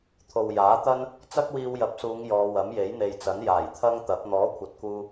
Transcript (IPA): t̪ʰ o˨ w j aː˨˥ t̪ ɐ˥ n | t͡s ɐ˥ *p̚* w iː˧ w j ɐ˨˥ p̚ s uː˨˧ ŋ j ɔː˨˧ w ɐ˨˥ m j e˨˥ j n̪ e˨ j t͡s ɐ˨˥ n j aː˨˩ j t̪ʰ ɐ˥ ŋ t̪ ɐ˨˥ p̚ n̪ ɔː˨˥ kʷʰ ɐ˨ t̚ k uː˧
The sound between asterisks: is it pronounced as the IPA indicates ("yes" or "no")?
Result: no